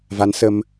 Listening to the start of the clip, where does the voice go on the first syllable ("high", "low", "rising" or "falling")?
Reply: rising